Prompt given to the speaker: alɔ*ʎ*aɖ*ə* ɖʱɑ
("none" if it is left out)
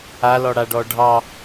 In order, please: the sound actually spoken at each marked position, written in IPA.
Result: ɽ, ɔ

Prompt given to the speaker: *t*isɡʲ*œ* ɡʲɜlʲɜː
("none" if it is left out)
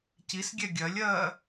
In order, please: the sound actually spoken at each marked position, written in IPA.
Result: c, ɛ

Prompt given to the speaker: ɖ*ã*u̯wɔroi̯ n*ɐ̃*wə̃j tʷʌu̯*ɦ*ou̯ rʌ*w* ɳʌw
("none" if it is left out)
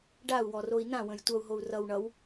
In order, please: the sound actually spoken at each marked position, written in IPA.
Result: a, ã, ɦ, w

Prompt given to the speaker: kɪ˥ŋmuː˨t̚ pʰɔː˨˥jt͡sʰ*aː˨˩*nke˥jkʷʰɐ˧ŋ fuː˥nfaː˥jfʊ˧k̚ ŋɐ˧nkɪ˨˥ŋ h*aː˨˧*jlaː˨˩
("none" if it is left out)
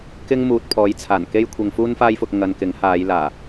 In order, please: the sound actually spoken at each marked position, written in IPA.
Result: aː˨˩, aː˨˧

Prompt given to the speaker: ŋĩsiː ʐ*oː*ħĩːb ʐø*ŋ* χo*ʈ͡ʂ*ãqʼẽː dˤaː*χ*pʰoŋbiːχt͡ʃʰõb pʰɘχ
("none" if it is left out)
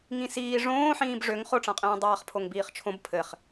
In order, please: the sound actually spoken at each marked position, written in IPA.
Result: õː, ŋ, ʈ͡ʂ, χ

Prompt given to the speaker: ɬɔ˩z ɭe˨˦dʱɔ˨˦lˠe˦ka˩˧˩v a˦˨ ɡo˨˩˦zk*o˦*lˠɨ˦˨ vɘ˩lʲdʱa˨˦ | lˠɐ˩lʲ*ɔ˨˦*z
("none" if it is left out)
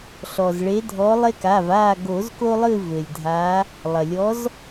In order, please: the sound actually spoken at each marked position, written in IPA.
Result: o˦, ɔ˨˦

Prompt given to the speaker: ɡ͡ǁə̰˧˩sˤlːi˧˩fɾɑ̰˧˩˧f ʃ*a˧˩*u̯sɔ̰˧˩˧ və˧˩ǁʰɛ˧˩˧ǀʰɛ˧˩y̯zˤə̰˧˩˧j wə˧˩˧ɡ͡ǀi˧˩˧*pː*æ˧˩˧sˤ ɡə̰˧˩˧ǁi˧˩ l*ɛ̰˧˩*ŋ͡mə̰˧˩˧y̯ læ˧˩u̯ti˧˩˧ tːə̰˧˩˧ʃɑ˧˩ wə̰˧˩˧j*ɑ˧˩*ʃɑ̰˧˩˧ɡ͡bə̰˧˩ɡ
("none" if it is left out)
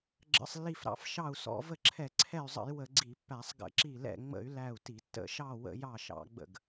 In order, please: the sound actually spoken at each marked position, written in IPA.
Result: ɑ˧˩, pː, ɛ̰˧˩, ɑ˧˩

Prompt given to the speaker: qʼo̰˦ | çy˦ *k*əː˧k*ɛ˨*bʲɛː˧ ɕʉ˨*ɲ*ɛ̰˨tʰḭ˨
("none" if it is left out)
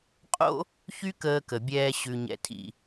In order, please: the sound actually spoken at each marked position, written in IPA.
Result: k, ə˨, ɲ

